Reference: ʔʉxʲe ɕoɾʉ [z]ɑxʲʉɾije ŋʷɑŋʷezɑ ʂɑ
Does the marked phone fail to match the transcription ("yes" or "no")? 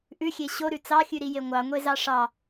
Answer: yes